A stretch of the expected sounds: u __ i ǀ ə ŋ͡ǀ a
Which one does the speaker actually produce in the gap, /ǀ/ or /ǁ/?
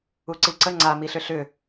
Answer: ǀ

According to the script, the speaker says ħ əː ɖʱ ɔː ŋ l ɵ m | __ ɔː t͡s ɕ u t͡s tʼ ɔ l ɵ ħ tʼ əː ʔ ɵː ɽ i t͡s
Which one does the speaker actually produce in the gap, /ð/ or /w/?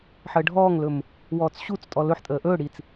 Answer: w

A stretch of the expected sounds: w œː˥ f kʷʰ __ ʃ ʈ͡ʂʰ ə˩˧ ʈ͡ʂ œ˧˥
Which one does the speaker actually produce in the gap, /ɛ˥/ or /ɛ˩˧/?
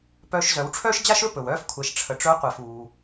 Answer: ɛ˩˧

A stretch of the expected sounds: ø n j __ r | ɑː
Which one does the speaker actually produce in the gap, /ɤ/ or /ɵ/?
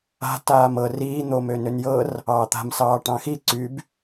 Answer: ɤ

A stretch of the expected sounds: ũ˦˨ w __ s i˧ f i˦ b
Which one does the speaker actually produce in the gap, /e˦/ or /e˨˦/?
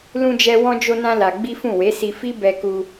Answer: e˨˦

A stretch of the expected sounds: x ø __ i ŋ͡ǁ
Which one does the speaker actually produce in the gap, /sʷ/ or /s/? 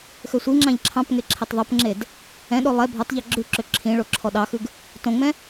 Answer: sʷ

